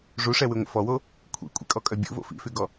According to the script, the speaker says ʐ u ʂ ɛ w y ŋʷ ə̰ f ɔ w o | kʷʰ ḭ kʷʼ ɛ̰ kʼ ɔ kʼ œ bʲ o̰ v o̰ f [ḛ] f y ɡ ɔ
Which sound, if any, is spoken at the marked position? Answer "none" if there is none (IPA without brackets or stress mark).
ḭ